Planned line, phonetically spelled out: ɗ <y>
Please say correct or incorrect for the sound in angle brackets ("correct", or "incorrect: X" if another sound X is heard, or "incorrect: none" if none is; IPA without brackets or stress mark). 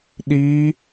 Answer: incorrect: i